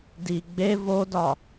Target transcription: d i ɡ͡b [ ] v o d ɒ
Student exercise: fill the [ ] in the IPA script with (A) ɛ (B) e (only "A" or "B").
B